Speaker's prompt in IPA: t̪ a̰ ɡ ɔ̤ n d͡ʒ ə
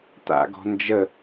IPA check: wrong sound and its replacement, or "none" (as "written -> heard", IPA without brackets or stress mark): none